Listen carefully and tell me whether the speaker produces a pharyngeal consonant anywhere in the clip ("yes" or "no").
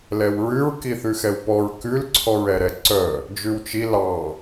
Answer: no